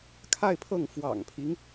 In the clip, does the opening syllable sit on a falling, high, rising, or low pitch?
falling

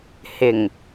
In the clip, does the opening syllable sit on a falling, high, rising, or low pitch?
low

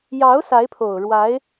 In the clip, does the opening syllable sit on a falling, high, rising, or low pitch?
rising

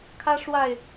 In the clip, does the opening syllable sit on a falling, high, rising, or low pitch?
high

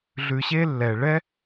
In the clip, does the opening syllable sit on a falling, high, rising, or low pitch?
low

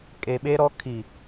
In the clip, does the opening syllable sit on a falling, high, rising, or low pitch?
low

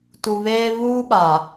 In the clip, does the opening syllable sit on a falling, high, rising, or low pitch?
low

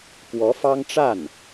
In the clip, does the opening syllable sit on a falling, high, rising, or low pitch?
rising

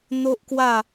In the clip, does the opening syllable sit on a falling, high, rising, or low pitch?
high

